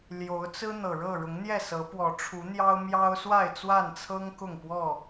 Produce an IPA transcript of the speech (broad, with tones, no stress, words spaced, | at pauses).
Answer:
ljo˨˦ʊ̯ t͡sɹ̩˦ n̪ɤ˨˩ɻɤ˥˨ ɻʊ˨˦ŋn̪jɛ˥˨sɤ˨˦ pwɔ˨˦ʈ͡ʂʰu˨˦n̪jɑ˦ʊ̯ mjɑ˦ʊ̯swa˥˨ɪ̯ t͡swa˥˨nt͡sʰɤ˦ŋ kʊ˥˨ŋpwɔ˥˨